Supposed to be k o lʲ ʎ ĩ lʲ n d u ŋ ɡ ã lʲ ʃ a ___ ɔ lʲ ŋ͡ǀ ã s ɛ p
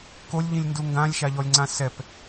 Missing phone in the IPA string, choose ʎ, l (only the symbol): ʎ